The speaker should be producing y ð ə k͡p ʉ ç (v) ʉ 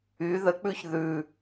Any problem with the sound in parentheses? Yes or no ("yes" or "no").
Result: yes